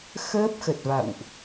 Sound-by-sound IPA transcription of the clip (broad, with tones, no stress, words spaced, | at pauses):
xəː˦˥p̚xə˨˩t̚va̰˧˨wʔ